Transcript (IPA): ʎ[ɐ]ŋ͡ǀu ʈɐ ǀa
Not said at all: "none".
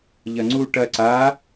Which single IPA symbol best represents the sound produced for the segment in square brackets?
ɐ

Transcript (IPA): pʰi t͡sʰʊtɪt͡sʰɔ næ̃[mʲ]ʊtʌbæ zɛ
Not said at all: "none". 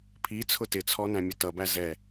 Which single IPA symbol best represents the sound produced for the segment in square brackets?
mʲ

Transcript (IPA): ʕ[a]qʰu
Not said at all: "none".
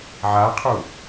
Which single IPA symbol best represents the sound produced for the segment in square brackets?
a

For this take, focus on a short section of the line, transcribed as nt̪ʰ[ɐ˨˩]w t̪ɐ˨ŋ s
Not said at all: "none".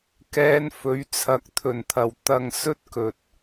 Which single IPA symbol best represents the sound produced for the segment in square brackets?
ɐ˨˩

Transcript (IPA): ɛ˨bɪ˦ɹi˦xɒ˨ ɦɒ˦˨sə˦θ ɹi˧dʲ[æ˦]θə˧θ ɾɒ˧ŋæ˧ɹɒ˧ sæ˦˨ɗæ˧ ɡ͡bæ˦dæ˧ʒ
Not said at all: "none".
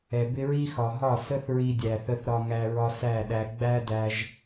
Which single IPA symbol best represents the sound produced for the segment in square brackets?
æ˨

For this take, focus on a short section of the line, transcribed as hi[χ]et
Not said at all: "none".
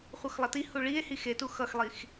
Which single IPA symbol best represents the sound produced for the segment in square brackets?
x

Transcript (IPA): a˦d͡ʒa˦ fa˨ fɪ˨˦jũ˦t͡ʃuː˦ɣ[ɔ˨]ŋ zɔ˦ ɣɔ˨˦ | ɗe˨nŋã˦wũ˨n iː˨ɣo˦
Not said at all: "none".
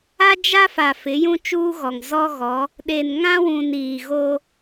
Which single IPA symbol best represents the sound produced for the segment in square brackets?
ɔ˨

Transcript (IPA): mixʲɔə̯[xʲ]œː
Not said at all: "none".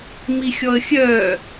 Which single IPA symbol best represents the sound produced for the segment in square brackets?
xʲ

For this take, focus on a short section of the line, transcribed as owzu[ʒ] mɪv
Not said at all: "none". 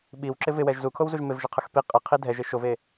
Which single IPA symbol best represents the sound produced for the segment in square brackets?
ʒ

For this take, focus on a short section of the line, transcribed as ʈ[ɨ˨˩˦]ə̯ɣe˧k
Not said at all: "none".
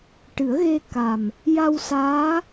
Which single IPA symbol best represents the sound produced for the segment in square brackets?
ɨ˨˩˦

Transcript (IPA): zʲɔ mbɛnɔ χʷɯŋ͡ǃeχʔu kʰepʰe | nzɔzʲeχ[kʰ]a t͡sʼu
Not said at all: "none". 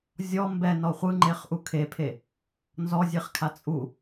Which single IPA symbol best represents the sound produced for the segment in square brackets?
kʰ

